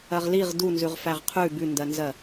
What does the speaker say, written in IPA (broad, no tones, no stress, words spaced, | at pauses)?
ɜʁliʁ dunzʉʁfæʁ qʰʉ bʉndɜnzɜ